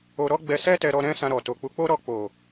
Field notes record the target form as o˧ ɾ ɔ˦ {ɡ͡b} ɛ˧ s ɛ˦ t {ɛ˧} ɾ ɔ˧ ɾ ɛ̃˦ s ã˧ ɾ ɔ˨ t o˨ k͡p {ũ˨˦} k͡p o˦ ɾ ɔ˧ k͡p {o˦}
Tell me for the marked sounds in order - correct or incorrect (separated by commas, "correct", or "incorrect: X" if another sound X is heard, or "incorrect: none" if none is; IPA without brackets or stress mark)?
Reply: correct, correct, incorrect: u˨˦, incorrect: o˨